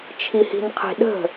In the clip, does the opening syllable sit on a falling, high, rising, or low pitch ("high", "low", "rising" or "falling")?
low